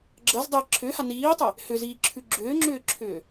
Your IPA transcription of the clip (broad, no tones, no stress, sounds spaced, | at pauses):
ɡ͡ǁ ɜ z dˤ ɛ ǁʰ ʏː h a n iː tˤ ɛ | h ʏ z iː ǁʰ ʉ ɡ͡ǁ ʏː ŋ͡ǁ ʏː ǁʰ ʏː